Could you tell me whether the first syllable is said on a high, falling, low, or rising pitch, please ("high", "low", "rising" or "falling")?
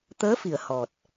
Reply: rising